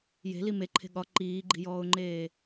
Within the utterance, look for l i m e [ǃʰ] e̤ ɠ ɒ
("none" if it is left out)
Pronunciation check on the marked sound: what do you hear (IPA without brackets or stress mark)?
ǃʰ